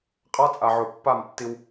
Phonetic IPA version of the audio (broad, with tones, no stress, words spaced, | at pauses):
qʼa˦t͡sʼa˨ʕo˨ pːa˦˨m tːi˧w